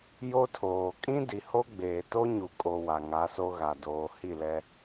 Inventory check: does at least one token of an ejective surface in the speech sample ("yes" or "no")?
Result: yes